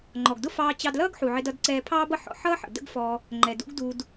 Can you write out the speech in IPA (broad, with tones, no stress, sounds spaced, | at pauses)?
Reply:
ŋ͡ǃ ɔ˩ ɡ d ʊ˥ f ɑː˧ t͡ɕ ɑ˧ d l ʌː˥ ɡ ħ u˩ ʕ ɪ˧ d ʌ˧ d ǀ ɛː˧ pʰ ɑː˥ b ʌ˥ ħ ɔ̰˧ ħ ʌː˥ ħ ə̰˩ d ə̰˥ ɡ f ɔ˧ | ŋ͡ǃ ɛ˩ d ṵ˥ ɡ d u˧ d